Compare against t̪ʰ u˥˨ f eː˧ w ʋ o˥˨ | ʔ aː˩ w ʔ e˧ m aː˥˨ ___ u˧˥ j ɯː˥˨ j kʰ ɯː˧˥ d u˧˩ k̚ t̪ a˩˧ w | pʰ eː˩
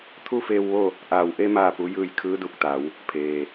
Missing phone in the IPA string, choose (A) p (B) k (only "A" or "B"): A